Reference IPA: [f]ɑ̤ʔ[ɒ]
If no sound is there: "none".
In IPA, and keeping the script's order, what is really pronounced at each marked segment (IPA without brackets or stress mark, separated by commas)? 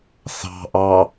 θ, ɑ